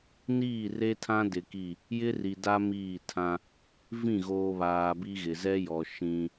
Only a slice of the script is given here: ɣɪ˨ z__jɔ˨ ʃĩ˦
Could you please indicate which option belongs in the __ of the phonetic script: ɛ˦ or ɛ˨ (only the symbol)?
ɛ˦